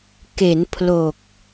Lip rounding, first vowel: unrounded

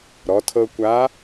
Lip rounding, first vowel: rounded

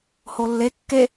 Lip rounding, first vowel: rounded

